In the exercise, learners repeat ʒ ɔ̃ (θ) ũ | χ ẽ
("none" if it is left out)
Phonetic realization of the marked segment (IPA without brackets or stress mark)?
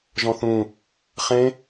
θ